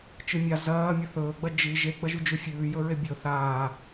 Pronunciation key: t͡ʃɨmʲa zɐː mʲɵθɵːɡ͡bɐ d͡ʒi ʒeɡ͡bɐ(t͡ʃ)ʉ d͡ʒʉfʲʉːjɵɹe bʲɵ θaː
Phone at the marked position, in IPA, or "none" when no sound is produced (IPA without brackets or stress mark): ʒ